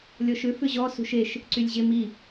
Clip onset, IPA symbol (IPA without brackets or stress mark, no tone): lʲ